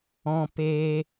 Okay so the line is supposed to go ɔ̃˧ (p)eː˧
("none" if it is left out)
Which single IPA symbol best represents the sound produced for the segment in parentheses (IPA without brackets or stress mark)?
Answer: p